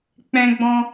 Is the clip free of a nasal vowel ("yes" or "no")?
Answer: no